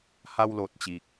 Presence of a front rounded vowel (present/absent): absent